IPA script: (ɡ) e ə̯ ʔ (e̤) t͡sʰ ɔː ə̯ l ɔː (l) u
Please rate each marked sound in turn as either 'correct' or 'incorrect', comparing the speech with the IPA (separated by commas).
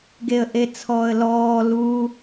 correct, incorrect, correct